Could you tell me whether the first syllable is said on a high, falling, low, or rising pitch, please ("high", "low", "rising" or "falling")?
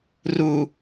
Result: low